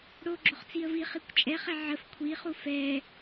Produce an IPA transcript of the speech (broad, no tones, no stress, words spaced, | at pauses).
ɽo ɡ͡ǁoχt͡siə̯viχikʷ t͡ʃʼɛχɛ ʕəf kʷʰiχu fɛ